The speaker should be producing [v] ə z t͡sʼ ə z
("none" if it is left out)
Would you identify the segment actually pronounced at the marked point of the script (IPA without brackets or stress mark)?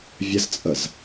vʲ